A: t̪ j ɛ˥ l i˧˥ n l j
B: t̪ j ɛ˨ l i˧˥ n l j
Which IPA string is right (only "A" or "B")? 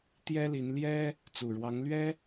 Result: A